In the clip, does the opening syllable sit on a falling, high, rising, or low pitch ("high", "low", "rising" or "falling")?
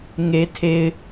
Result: low